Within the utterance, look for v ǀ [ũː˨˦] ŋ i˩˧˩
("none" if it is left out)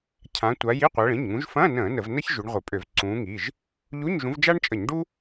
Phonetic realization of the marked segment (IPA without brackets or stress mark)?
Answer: ũː˨˦